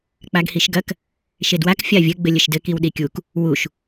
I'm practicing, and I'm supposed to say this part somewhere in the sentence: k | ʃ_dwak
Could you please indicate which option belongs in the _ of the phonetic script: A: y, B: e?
B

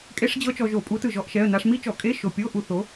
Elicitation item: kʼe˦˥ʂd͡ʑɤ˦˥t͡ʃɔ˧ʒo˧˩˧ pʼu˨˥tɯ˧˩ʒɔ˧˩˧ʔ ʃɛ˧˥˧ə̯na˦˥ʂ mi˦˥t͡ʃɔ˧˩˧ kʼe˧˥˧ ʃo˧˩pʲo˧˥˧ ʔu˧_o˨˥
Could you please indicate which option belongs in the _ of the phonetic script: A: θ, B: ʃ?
A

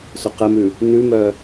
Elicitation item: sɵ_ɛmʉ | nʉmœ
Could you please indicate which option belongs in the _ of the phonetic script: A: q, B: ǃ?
A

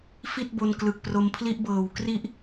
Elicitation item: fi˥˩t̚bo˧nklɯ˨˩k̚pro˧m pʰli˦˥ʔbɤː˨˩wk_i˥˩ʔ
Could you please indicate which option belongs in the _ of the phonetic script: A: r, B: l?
A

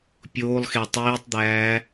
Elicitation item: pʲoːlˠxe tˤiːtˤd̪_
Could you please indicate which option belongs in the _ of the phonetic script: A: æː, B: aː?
A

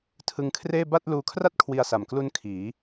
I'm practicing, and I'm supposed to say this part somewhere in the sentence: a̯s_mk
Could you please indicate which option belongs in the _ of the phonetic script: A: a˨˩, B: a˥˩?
A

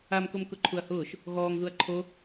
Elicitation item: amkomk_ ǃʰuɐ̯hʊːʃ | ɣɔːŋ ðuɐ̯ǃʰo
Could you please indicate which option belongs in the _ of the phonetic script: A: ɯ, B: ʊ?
B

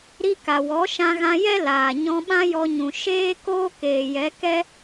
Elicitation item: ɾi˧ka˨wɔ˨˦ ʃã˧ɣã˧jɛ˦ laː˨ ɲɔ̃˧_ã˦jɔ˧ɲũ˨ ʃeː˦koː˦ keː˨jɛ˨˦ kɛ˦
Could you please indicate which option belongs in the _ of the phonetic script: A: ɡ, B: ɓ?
B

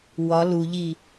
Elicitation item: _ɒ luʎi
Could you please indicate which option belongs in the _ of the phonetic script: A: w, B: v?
A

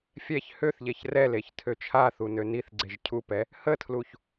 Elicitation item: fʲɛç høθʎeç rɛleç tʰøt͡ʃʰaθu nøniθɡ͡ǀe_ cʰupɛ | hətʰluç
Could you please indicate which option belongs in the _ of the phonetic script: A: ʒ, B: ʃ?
A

